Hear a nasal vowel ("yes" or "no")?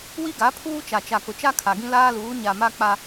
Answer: yes